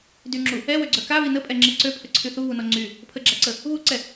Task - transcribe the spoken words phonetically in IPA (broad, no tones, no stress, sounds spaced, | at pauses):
d y ŋ͡ǁ u | ɛ w ø ɡ͡ǀ œ k a β i n ə pʼ ɛ ŋ͡ǁ e ǀ ø pʰ ə ǀʰ y θ u β u n ɔ ŋ͡ǀ y | pʰ ə ɡ͡ǁ a ǀ ə | β u ǀ ɛ